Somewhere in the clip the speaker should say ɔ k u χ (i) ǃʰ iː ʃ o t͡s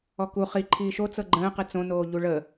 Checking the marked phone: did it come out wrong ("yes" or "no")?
no